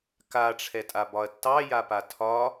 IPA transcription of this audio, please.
k a ʈ͡ʂʰ ɛ tʼ a b ɒ ɐ̯ tː ɑ j a p a tʰ ɒ

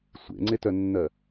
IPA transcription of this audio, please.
sʷ ḛ ŋ͡ǀ e t œ nː ɜ

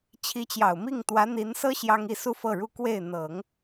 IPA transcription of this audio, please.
t͡ɕʰ i˧˥ t͡ɕ j ɑ˨˩ ʊ̯ m i˥˩ ŋ t̪ w ä˧˥ n̪ i˧˥ n s ɤ˥ ɕ j ɑ˥ ŋ i˥˧ s u˥˧ f ɤ˥˩ ɻ u˥ k w e˥˩ ɪ̯ n̪ ɤ˨˩˦ ŋ

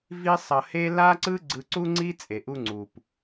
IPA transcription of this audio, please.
v i˥ sˤ ʌ˧ h e˥ l a˥ ǀ ɯ˥ ɡ͡ǀ ɯ˧ ǀ u˥ ŋ͡ǀ i˥ t͡sʼ e˩ ʔ u˧ ŋ͡ǀ u˩ p

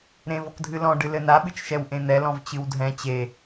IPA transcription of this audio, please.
ɾ ẽ v ɔ k dʱ ɨ l ɔ̃ ɖ ɨ l ɘ n a ɓ ɨ t͡ʃ ʃ ɛ w ʔ ẽ n̪ ɛ l ɔ̃ v t͡ɕ ɨ w dʱ ɛ̃ t͡ɕ e

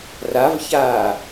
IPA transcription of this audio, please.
r a v ç aː

